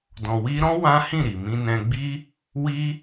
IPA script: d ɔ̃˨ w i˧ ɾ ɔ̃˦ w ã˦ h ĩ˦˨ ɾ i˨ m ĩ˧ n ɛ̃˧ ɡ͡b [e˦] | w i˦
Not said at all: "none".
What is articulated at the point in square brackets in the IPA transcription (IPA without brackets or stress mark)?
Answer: i˦